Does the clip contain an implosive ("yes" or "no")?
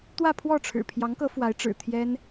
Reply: no